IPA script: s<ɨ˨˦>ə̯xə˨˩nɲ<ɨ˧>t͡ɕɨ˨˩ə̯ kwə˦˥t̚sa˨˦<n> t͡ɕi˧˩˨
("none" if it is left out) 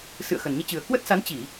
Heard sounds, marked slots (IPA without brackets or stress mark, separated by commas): ɨ̰˧˨, i˧, n